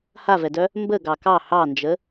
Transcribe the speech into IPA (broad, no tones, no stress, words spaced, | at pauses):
havɛdœ | mbə ɡɑkɑ hɑnd͡ʒə